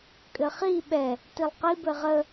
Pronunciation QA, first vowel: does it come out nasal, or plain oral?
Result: oral